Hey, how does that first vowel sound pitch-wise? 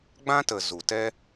high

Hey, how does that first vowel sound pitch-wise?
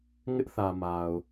high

